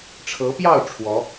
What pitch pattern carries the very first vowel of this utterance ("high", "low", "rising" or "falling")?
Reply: rising